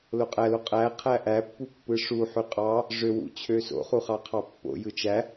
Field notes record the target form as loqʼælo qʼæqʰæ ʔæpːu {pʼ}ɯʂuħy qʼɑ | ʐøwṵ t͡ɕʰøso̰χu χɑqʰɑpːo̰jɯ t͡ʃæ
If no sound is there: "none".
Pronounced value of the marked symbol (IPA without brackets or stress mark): pː